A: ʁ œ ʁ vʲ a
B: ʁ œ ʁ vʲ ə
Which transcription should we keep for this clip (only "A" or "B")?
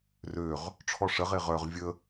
B